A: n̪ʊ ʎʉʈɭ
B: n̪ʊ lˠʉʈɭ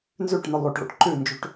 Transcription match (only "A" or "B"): B